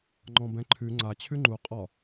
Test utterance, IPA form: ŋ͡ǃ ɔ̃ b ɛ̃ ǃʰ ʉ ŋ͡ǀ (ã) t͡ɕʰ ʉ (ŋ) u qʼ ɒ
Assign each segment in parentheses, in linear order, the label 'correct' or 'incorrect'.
incorrect: a, incorrect: ŋ͡ǃ

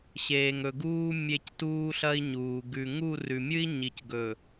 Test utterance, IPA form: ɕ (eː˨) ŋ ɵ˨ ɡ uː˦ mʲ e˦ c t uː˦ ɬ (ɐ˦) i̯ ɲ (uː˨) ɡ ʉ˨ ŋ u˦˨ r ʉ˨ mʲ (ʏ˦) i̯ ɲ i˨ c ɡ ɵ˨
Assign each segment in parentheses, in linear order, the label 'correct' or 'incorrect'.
correct, correct, correct, incorrect: ɨ˦

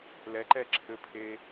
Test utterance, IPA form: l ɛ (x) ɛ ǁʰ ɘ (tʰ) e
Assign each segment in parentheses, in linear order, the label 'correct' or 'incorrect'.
incorrect: ǃ, incorrect: pʰ

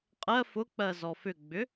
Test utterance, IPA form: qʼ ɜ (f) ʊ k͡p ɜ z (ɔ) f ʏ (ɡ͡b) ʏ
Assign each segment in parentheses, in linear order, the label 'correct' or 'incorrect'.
correct, correct, correct

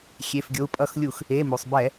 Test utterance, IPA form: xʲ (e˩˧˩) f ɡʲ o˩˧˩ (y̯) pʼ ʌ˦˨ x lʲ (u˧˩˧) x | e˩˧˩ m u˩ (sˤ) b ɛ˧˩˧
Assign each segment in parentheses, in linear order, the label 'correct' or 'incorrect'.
correct, incorrect: u̯, correct, correct

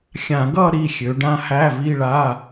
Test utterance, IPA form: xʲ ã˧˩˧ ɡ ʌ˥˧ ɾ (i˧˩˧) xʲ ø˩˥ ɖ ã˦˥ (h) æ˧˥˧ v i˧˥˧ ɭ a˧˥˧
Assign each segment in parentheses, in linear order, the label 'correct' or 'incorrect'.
incorrect: i˧˥˧, correct

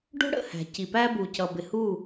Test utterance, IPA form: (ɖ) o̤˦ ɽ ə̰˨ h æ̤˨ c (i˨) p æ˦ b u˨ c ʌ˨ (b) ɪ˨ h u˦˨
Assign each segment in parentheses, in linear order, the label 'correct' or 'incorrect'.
correct, correct, correct

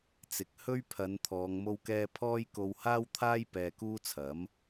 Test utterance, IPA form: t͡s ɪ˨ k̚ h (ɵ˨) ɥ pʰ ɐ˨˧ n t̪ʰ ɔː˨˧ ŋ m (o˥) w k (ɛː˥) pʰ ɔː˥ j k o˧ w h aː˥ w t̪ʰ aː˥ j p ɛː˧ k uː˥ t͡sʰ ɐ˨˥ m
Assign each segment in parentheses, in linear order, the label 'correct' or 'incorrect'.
incorrect: ɵ˥, correct, correct

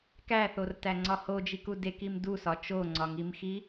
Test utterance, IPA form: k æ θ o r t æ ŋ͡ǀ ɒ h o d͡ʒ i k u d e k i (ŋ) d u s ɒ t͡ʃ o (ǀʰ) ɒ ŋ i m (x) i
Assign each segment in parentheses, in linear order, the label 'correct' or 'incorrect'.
incorrect: m, incorrect: ŋ͡ǀ, correct

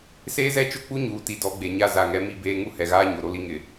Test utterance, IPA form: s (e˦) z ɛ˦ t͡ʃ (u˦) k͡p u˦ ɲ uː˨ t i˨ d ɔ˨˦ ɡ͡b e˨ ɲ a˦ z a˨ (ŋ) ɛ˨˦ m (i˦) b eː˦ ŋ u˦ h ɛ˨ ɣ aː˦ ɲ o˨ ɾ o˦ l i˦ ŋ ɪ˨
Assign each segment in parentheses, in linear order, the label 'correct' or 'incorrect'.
incorrect: eː˦, incorrect: ʊ˦, correct, correct

